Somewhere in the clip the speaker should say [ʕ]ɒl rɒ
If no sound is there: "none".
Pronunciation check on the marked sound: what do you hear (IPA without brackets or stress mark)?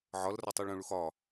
ʕ